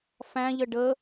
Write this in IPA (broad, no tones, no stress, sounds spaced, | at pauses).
f æ̃ ʎ ə ɖ ə